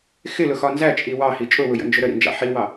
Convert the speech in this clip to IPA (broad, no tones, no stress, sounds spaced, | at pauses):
x ɪ l ʊ x ɒ n z æ t͡ʃʼ i w ɑ h i t͡ʃʼ ʊ w ʊ j ə̰ n d͡ʒ ʊ ɾ ə ɾ ḭ n d͡ʒ ɑ̰ ħ i w ɑ